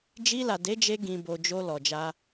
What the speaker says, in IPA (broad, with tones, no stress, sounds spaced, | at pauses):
d͡ʒ i˧ l a˨ d e˨˦ d͡ʒ e˧ ɡ ĩ˨ b o˨ d͡ʒ o˧ l ɔ˨ d͡ʒ a˧